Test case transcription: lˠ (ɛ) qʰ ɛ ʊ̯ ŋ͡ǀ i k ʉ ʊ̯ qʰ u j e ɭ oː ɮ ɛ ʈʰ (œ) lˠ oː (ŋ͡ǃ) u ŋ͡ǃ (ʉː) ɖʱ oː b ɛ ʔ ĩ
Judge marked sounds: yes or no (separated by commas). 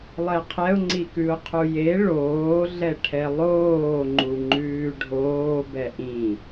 yes, no, yes, yes